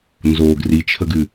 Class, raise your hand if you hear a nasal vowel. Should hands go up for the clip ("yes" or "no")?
no